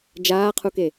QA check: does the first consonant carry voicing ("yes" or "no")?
yes